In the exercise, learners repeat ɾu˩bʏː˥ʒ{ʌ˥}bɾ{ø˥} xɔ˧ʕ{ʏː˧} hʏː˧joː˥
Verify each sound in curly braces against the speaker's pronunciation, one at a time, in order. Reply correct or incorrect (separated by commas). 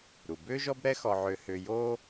incorrect, incorrect, correct